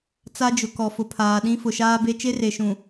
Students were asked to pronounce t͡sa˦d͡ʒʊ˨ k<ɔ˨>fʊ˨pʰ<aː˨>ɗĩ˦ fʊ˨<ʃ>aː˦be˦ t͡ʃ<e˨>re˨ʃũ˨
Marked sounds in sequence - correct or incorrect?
correct, correct, correct, incorrect: e˦

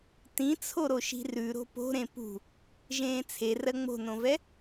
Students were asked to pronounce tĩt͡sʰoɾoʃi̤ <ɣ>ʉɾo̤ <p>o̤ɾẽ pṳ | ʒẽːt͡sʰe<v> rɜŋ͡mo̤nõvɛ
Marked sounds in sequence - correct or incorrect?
incorrect: r, correct, incorrect: none

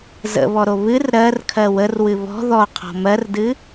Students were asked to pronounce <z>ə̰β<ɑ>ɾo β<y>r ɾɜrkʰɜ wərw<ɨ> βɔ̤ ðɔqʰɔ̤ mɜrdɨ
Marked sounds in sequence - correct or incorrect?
correct, incorrect: ɔ, incorrect: ɨ, correct

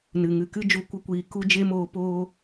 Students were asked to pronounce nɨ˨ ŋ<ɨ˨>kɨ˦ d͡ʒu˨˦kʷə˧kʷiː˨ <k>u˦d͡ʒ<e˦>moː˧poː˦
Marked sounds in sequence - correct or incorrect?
correct, correct, correct

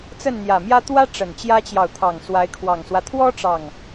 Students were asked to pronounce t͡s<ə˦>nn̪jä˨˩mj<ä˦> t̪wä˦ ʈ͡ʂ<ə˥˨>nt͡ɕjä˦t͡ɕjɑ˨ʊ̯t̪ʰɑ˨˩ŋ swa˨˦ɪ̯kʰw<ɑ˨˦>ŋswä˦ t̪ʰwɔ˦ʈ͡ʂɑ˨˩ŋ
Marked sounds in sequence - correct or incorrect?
incorrect: ə˥˨, correct, incorrect: ə˨˩, incorrect: ɑ˨˩

